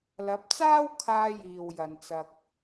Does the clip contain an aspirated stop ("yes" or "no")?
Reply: yes